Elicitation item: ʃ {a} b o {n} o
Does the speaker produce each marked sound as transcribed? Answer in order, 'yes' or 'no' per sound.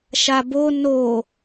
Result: yes, yes

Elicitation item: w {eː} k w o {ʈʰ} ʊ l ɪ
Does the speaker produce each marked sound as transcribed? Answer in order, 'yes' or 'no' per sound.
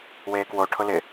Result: yes, yes

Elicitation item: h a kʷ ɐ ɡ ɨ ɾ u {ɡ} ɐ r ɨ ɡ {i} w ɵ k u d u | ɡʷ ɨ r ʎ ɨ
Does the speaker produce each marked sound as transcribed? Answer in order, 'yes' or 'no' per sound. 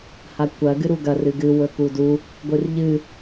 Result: yes, no

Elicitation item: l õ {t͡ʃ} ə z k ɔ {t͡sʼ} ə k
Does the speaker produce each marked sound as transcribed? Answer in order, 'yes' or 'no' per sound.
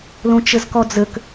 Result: yes, no

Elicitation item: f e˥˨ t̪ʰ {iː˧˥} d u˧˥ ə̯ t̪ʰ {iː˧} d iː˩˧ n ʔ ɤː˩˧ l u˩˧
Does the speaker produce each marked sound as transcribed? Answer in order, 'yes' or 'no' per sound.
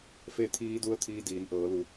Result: yes, yes

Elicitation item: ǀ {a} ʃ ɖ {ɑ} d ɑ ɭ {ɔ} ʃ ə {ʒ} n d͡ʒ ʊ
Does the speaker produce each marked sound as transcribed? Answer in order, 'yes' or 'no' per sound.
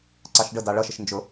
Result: no, no, no, no

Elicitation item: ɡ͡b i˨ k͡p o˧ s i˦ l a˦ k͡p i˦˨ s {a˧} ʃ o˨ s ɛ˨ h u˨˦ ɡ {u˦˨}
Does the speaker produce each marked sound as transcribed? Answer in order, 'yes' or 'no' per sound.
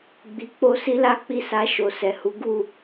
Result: yes, yes

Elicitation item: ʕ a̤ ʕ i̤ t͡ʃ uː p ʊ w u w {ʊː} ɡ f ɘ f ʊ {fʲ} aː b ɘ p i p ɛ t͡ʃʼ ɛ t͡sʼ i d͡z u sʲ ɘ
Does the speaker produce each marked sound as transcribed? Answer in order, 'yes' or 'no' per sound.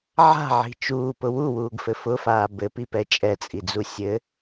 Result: no, no

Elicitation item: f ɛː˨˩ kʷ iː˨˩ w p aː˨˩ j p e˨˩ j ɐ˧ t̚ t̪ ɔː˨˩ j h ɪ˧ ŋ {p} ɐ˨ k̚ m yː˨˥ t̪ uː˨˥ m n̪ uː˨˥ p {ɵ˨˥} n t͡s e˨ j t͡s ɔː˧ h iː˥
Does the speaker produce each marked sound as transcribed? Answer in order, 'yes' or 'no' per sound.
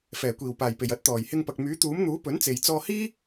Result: yes, yes

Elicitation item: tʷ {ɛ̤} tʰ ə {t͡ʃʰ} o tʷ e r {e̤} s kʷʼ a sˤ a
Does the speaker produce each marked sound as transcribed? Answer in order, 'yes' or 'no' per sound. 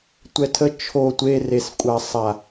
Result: no, yes, no

